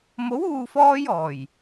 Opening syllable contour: rising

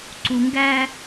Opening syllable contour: low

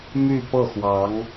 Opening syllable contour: falling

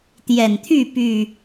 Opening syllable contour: low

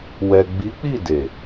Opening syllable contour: low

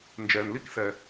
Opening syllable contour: low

